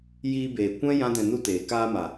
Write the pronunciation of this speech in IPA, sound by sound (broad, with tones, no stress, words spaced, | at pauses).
jiː˧beː˨kʷɛ̃˦ jã˦dɛ̃˧nu˦teː˨ kaː˧ma˨